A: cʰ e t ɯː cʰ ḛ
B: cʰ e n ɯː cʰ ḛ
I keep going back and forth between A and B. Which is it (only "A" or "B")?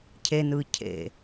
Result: B